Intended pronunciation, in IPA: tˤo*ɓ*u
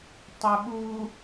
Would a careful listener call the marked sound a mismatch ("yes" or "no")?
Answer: no